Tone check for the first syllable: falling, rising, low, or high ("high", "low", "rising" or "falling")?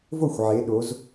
falling